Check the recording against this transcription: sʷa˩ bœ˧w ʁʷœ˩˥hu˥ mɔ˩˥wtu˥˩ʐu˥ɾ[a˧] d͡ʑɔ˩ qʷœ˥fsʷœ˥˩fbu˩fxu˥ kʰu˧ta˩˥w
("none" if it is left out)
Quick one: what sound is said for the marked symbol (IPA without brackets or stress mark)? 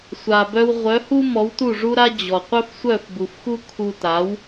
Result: a˥